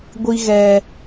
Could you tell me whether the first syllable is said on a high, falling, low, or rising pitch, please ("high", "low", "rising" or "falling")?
high